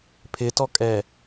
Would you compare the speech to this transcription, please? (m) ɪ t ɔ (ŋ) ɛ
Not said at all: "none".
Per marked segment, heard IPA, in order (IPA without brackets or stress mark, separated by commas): pʰ, kʼ